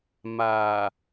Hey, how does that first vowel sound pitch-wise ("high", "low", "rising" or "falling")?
low